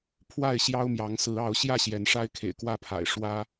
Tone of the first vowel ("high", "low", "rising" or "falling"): falling